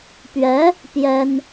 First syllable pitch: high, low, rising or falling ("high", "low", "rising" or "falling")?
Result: rising